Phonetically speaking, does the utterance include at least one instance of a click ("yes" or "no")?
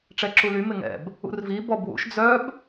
yes